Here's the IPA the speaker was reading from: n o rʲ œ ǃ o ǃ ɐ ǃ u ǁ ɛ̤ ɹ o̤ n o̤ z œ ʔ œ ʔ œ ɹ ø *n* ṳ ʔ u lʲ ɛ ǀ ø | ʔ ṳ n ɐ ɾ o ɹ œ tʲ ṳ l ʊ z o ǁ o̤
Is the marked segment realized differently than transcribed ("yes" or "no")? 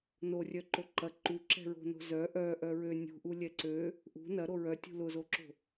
yes